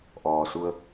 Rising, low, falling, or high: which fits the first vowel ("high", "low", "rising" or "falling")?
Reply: low